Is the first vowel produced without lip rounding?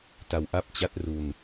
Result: yes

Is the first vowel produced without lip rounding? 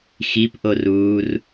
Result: yes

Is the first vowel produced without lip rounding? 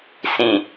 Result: yes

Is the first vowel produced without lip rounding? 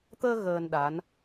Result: yes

